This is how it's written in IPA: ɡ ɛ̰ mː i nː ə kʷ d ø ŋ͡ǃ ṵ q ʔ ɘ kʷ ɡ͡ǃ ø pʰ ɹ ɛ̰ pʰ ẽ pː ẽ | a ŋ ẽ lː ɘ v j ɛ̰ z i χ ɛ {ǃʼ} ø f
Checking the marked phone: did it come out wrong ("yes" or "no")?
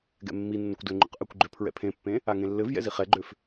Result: yes